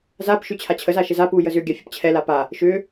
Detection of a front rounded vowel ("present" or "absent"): present